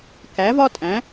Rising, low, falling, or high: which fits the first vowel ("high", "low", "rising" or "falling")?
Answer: rising